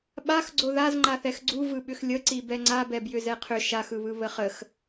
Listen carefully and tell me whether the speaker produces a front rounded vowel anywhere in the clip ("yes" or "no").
yes